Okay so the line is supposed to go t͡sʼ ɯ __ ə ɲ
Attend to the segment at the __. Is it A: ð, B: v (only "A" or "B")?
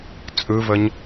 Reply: B